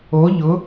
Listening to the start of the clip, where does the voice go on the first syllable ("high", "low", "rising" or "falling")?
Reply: rising